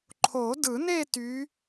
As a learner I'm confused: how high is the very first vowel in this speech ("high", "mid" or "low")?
mid